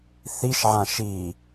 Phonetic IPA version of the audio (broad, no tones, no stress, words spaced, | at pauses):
θiʃʕã ʃi